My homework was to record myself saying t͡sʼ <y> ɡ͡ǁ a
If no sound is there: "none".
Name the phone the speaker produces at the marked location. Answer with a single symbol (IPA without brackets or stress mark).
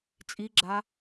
i